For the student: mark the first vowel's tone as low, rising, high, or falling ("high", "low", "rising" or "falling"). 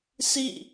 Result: falling